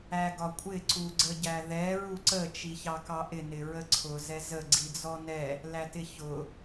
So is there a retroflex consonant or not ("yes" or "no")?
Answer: no